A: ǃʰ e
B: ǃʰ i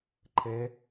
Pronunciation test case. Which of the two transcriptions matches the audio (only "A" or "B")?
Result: A